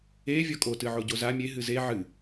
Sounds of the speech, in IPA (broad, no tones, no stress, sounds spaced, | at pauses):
e vʲ ɔ kʼ o t ɨ ʕ o ɟ o z a mʲ e ɦ ɨ z e ʕ ɨ